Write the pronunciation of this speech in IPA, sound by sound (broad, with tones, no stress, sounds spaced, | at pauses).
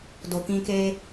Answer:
d o˨ k ĩ˧ k e˦